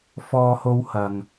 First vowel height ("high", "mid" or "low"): mid